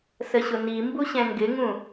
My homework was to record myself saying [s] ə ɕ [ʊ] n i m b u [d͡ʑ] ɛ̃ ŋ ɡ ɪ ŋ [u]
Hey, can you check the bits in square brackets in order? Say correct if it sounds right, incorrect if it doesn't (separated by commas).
correct, correct, incorrect, incorrect